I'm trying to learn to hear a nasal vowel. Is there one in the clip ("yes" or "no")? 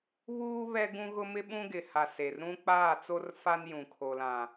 yes